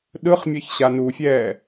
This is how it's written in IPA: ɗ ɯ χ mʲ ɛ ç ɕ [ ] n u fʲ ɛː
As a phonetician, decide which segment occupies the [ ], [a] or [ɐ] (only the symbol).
a